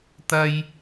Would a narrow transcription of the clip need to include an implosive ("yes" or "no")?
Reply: no